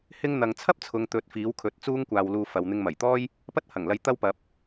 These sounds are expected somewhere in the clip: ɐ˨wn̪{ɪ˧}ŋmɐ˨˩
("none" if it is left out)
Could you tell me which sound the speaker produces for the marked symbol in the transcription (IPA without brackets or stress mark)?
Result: ɪ˧